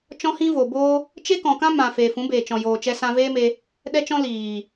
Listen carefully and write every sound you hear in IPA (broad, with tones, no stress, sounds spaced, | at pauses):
t͡ʃ ɔ̃˦ h ĩ˦ v o˨ b oː˦ | t͡ʃ e˦ k ɔ̃˨ k ã˦ m ã˨ f eː˨ f ũ˨˦ b eː˨ t͡ʃ ɔ̃˨ j oː˨ t͡ʃ ɛ˧ s ã˧ v eː˦ m e˧ | ɗ ɛ˧ t͡ʃ ɔ̃˧ l iː˨